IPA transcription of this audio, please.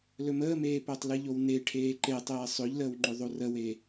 l ɵ m əː m eː p əː tˤ l ɨ ʎ o w n e ʈʰ eː ǃ e tˤ eː sˤ ɵ ʎ l əː w ŋ͡ǃ ɵ ðˤ o r ə w e

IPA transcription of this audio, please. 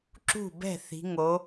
ǁ ṳ˥˩ b ɛ̤˥˩ θ i̤˩˧ ŋ o˩˧

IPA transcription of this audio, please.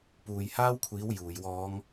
p uː˨ j h aː˥ w kʷʰ iː˨˥ w j uː˨˩ j w ɔː˨˧ ŋ

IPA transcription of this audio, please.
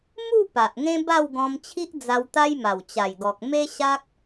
m u˥˧ p a˨ ʔ ŋ ẽ˦ b a˥˧ w ɡ ɔ̃˧ m t͡ɕʰ i˦ ʔ d͡z a˧ w t̪ a˦ j m a˨˩ w t͡ɕ a˨˩ j ɡ ɔ˨ k̚ m e˦ ɕ a˦ k̚

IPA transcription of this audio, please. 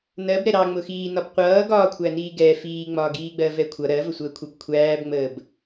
n ɜ b ɾ ɛ ɾ ɑ ŋ͡m ʊ x iː n ɒ b qʷ ʌː ɡ ɒː kʷʰ æ n iː ɡ ɛ f iː ŋ͡m ɒː ɡ iː ɡ͡b ɜ v ɛ kʷʰ ʌ ɾ ɜ v ə sʷ əː kʷʰ ʌ b kʷʰ æː b ŋ͡m əː b

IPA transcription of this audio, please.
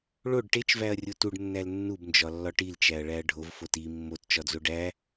ɭ o ɖ ʈ e t͡ʃ v æ ɐ̯ rʲ o t u ɖ nː æ l nː u b n d͡ʒ ɒ lː ɒ ʈ i l t͡ʃ æ ɐ̯ ɭ æ ɐ̯ ɖʱ o v f o t i mː o t t͡ʃ ɒ d͡z o ɖ æ

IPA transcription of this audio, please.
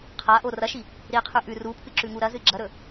qʰ a ʔ o r ɐ ʃ i | ɾ i qʰ ʉ ʔ ʉ r u pʰ ɨ ǁ ʉ ŋ u ɾ ɐ z ɨ ɡ͡ǁ ɐ ɾ ɵ

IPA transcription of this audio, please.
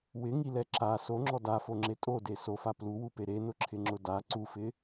w ɪ ŋ i l ɛ ǁ a s o ŋ͡ǁ ɔ d a f o ŋ͡ǁ e tʼ o d e s o f a p l u w u p e ɾ e n ʊ ǁʰ ɪ ŋ͡ǁ ʊ d a ǀ u f ɪ

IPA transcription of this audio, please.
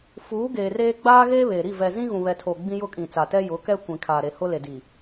f uː˨˦ ɡ eː˨ r eː˦ ɡ͡b aː˦ ɣ eː˦ β e˨ ɾ i˦˨ v ɛ˨ z ĩ˦ ɣ ũ˨ β ɛ˨ tʰ o˨ ɡ͡b ĩ˦ j ʊ˦˨ kʼ ĩ˨ t͡s a˨ t ɛ˦ j ʊ˨˦ k ɛ˦ kʷ ĩ˨ kʰ aː˨ ɾ e˨ h ʊ˦ l e˨ d i˨

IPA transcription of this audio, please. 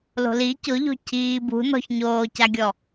l o̤ l i c ʊ ʎ o̤ cʰ iː b ṳ n ɔ̤ ç ɲ oː c a ɡʲ ɔ

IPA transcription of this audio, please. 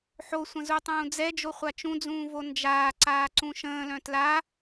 ħ o sʷ ə̃ z u tˤ ũː d͡z ɛ d͡ʒ o χʷ a t͡ʃ ũ d͡z ũː v o n d͡ʒ aː ǀ aː ǀ ũ ʃ ə̃ː l œ̃ t l a

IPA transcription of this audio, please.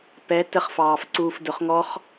p ɛ t ə χ f ɑː f ǀ uː f d ʊ χ ŋ ɔ χ

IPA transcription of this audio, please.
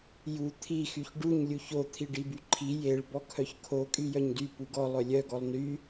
j u t̪ʰ i x y ç ɖ u ɲ lʲ u ç o t̪ʰ i ɖ i b y ǃʰ i j e ɭ b ɔ kʰ œ ç kʰ o kʼ y j œ ɲ d y p u ɡ ɔ lˠ œ lʲ œ ɡ ɔ lˠ n y

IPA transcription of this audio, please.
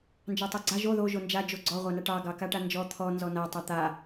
n d͡ʒ ɑ tˤ o ɡ͡ǀ a ʒ o ð o ʒ o n d͡ʒ a d͡ʒ o ɡ͡ǀ ɔ ʁʷ a n a ʈ ɑ ɡ ɑ k a ʈ a n d͡ʒ ɔ t̪ʰ ɔ n z ɔ n a tˤ a t̪ a

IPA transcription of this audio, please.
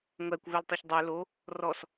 ŋʷ æ kʷ v ɛ l tˤ ø ç dˤ ø l o | r ɔ s

